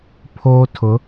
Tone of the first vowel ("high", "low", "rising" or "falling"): high